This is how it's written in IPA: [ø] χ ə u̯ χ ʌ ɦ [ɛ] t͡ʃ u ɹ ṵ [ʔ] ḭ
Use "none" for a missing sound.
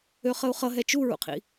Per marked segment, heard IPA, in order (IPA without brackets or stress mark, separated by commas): ø, ɛ, qʰ